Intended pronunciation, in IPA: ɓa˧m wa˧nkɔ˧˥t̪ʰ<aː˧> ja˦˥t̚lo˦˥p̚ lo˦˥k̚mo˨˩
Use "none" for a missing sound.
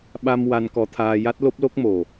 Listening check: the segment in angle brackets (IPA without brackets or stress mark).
aː˧